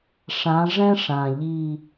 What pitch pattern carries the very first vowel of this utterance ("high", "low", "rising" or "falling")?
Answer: rising